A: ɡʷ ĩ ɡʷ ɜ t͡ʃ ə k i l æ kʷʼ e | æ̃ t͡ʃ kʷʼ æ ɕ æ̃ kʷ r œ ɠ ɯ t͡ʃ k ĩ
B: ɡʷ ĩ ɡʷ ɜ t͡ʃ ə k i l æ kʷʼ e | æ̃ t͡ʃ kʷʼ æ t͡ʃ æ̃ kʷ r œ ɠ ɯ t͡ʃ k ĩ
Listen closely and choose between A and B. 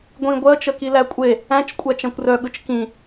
B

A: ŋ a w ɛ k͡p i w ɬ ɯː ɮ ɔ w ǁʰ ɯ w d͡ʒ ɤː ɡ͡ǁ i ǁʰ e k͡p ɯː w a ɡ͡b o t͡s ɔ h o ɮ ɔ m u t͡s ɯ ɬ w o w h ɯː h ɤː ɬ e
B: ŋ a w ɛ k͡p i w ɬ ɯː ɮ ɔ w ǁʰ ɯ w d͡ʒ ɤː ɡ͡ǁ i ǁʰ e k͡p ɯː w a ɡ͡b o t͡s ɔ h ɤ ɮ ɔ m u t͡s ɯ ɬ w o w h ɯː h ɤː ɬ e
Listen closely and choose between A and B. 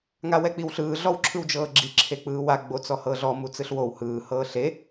B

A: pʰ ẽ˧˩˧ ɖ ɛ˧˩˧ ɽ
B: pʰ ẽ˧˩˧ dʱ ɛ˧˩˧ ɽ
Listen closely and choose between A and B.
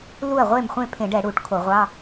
A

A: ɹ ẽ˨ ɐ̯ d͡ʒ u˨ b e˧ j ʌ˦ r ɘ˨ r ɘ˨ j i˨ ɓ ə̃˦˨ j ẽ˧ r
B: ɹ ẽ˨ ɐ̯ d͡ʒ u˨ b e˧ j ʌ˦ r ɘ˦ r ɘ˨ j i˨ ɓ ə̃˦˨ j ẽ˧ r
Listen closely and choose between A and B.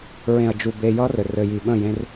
A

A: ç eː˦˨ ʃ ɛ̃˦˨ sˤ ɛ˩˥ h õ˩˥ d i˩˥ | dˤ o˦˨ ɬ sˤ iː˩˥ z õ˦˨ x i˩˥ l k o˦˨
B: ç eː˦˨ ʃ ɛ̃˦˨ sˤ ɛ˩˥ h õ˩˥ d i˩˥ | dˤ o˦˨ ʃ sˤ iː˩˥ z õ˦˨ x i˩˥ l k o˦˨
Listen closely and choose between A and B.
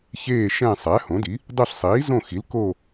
A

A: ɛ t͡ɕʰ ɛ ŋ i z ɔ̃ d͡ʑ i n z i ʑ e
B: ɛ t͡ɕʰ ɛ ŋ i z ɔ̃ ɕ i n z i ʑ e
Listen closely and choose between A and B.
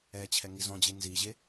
A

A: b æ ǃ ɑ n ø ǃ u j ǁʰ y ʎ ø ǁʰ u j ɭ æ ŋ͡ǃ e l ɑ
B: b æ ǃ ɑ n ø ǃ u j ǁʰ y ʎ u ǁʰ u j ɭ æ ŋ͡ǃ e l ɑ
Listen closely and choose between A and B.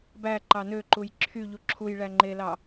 B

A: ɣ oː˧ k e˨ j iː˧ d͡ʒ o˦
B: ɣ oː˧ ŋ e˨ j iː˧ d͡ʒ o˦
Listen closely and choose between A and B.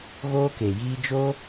A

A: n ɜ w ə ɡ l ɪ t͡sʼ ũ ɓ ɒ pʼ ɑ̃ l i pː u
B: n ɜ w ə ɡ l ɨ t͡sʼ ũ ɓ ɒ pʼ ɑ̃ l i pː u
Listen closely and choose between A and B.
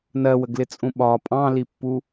A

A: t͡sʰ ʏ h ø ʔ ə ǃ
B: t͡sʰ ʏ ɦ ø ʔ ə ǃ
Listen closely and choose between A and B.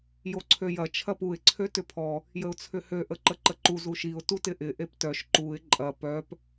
A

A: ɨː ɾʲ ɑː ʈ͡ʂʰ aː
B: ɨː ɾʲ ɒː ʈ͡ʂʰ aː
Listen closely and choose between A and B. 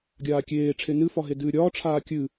B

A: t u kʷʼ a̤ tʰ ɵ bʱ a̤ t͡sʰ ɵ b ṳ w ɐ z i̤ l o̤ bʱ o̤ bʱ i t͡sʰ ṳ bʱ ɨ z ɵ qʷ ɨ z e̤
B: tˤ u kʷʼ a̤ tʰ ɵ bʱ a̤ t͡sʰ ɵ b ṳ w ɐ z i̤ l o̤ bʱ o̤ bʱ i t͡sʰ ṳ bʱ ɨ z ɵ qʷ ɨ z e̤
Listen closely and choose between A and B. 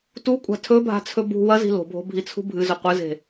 A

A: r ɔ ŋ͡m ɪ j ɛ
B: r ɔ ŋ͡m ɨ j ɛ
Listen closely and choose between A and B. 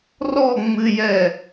B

